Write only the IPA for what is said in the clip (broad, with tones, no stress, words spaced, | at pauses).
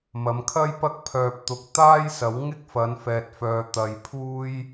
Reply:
mɐ˨˧mkʰɐ˥jpɐ˥k̚ pʰœː˧p̚t̪ʊ˧k̚ t̪aː˥jsɐ˨˥w ŋɪ˥k̚fɐ˨˧nfɛː˨t̚fœː˨ t̪ɐ˨j pʰuː˥j